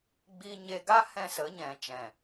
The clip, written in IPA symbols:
ɡ͡b i˦ ɲ e˧ ɡ a˦ h ɛ̃˦ s ə˨˦ ɲ ɛ̃˨ t͡ʃ ɛ̃˨

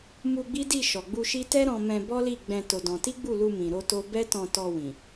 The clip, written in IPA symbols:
m u˧ ɡ͡b i˦ d i˦˨ ʃ ɔ˨ ɡ͡b u˧ ʃ i˦ t ɛ˦ ɾ ɔ̃˧ m ɛ̃˧ b ɔ˦ l i˦˨ ɡ͡b ɛ̃˧ t o˧ d ɔ̃˧ t i˦ ɡ͡b u˦˨ l u˧ m ĩ˨ ɾ o˧ t o˦ b ɛ˦ t ɔ̃˧ t ɔ˧ w ĩ˨

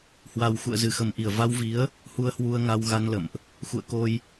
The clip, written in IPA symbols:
h w a˨˩ w x ṵ˧˨ ə̯ z ɨ˧˩ x ə˨˩ m ʔ i˧˩ ə̯ v a˧ w v i˨˦ ə̯ | h u˧ ə̯ h w u˧ ə̯ ŋ a˧ w ɣ a˧ n l ə̰˧˨ m ʔ | x ṵ˧˨ ə̯ k o˧ j

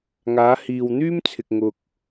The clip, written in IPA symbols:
ŋ aː˨˧ h iː˨ w n̪ yː˥ m t͡sʰ ɪ˨ k̚ ŋ ʊ˧ k̚

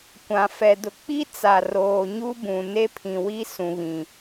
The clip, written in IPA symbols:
kʷ ã˨ f ɛ˨ d ʊ˨ k͡p i˦ t͡s a˨ r oː˨ ɲ u˦ b ũ˨ n e˦ pʰ ĩ˨ w i˦ s ũ˨ β ĩ˨

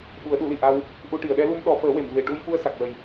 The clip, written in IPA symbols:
ɓ u˨˩˦ ə̯ ɗ u˨˩˦ l i˨˩˨ ʔ a˧ w | ʔ u˧ ʈ i˨˩˨ ə̯ ɗ ɛ˧˥ l u˧ m ɗ ɔ˨˩˦ f əː˨˩˦ w e˨˩˨ m v e˨˩ ʈ u˧ j f u˧ ə̯ s a˨˩ k̚ w ə˨˩ j

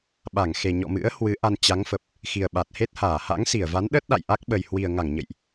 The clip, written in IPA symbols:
ɓ a˧˩ ŋ x e˨˩ ɲ ɔ̰˧˨ m ɨ̰˧˥ ə̯ h w ɨ˨˦ ʔ a˧ n t͡ɕ a˨˦ ŋ f ə˨˩ p̚ | x i˨˩ ə̯ ɓ a˨˩ t̚ h e˦˥ t̚ h aː˧˩ h a̰˧˥ ŋ s i˧˩ ə̯ v a˨˦ n ɗ ə˦˥ t̚ ɗ a̰˧˨ j ʔ a˦˥ k̚ ɓ ə˨˩ j h w i˨˩ ə̯ ŋ a˧˩ ŋ ɲ ə̰˧˨ j ʔ

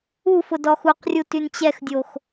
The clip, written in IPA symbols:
u f ʊ d ɔ x u q rʲ u t y n t͡ɕ ɛ x dʲ o x

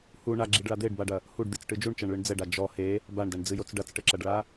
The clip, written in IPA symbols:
h u ɳ a ɡ͡ǁ i ɖ ɭ a d̪ e ɖ b a ɖ ɐ | h u ɖ d̪ i t͡s ʈ ɨ d͡ʒ u ɳ t͡ʃ ɐ ɳ ɭ ɨ ɳ d͡z ɛ ɖ a d͡ʒ ɔ h e | b a ɳ d ɐ ɳ d͡z ɨ j o t͡s ɖ ɐ t͡s ʈ ɘ ǁ ɐ ɖ ɭ a

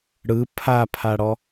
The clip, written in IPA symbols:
ɽ ɯ pʰ a pʰ a ɽ ɔ

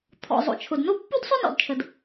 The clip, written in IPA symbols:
t̪ʰ ɔ̰˩ zˤ o̰˩ t͡ʃʰ ʊ˩ d n o˥ pː u˥ d sˤ ʊ˥ n ɔ̰˩ d t͡ʃʰ ə˩ d

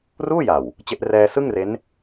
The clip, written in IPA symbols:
r uː˥˩ j a˨˩ w | t͡ɕ e˦˥ ʔ r ɛː˧ s ɯ˥˩ ŋ r e˦˥ n

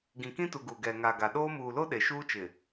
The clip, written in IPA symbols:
ɡ ĩ˨ k ĩ˦ t u˨ ɡ u˨ ɡ ɛ˨ ŋ a˨ ɡ a˨ ɗ oː˦ m uː˨ l o˦ ɗ e˨ ʃ uː˦ t͡ʃ ɪ˨

